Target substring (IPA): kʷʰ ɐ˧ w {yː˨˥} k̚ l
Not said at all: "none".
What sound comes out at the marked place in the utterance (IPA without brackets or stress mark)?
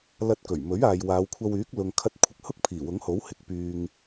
yː˨˥